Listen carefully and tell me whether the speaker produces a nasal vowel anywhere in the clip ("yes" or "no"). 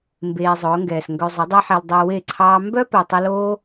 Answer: no